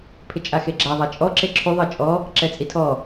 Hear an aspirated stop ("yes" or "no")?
yes